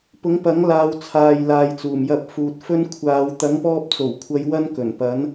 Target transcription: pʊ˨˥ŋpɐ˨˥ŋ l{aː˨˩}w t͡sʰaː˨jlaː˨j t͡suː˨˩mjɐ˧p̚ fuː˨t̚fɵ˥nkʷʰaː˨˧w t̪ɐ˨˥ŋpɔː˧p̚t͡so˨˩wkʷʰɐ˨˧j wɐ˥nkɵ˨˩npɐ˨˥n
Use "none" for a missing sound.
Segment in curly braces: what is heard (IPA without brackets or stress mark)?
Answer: aː˧